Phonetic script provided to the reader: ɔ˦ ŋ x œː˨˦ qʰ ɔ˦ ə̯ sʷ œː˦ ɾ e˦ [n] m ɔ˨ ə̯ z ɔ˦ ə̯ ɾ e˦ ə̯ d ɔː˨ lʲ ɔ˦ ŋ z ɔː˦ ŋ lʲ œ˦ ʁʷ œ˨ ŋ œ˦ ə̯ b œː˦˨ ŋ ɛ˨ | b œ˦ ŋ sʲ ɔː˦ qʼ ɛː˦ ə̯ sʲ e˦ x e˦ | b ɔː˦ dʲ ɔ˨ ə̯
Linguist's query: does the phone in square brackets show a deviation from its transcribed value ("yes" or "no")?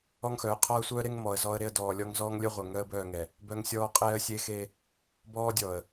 yes